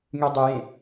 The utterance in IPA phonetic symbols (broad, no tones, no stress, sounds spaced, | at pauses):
ŋ y dˤ ʏ j ẽ